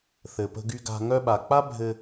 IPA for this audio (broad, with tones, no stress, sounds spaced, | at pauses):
θ ɘ˨ p ə̤˧ ɡ y˧ ɡ a̤˧ ŋ œ˧ ɓ a˨ k͡p a˦ bʱ ɘ˧